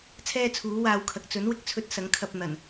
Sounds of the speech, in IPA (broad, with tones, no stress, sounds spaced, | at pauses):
t͡sʰ ɛː˥ t͡sʰ uː˨˥ w aː˧ w kʰ ɐ˨ k̚ t͡s ɵ˨˥ n w ɪ˧ k̚ t͡sʰ ɵ˧ t̚ s ɐ˨˥ ŋ kʰ ɐ˧ p̚ n̪ ɐ˨˩ n